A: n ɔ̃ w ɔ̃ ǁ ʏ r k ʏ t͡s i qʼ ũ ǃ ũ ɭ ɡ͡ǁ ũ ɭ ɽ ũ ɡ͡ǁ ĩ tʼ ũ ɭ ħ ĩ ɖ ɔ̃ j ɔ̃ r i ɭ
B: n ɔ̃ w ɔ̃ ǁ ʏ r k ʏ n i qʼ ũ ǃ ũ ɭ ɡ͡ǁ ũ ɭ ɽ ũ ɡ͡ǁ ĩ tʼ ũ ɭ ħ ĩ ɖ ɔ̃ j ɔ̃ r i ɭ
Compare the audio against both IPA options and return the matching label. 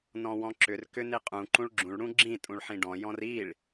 B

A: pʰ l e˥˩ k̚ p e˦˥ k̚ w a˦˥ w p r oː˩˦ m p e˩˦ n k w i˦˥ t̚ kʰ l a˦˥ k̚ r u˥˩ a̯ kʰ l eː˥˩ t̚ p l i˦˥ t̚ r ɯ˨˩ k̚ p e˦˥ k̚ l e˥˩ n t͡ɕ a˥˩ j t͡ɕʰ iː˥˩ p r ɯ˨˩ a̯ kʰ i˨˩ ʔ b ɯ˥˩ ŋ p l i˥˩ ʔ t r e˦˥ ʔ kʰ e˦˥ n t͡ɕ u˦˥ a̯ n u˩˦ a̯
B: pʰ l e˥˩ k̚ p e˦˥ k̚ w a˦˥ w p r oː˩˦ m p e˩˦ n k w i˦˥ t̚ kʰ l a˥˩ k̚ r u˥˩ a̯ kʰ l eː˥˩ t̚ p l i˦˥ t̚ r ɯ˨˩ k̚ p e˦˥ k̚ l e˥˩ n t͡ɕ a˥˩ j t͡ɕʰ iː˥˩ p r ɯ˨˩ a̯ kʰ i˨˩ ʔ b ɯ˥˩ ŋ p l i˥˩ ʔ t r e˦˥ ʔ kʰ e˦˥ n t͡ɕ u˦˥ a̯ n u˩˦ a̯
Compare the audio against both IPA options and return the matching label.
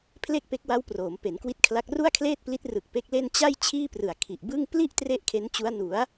A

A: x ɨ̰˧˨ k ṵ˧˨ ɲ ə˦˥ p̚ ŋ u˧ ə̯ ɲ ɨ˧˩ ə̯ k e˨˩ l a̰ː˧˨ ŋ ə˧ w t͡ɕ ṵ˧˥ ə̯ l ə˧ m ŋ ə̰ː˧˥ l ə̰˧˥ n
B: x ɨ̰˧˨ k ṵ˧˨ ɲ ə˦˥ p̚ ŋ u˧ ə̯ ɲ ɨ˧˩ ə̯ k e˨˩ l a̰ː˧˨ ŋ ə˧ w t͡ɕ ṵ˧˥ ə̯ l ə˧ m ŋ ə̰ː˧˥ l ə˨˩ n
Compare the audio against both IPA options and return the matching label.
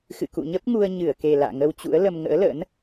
A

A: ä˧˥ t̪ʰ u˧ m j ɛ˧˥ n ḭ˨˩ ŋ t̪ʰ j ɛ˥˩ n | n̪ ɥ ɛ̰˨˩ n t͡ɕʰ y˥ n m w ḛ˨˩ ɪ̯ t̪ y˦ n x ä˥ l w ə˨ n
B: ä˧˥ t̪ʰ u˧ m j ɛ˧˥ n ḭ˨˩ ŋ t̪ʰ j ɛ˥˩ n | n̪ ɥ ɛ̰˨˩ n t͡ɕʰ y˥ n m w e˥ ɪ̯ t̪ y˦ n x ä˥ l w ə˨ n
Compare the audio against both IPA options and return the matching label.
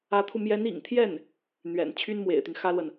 A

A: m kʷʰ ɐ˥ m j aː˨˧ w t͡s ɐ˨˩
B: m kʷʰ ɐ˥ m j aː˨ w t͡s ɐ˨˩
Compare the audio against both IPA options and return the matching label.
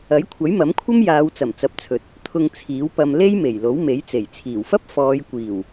A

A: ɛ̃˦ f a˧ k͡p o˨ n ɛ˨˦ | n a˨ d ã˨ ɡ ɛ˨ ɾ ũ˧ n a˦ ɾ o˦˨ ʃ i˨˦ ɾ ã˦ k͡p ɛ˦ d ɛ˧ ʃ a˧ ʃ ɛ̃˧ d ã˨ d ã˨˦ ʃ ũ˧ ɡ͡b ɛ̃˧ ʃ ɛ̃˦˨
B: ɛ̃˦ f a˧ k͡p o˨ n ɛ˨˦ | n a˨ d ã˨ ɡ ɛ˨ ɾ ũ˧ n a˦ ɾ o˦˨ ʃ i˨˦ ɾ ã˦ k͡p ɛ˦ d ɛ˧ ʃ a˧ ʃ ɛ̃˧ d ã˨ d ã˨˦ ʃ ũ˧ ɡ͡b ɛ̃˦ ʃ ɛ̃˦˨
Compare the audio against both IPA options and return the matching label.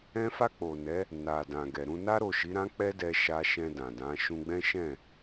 B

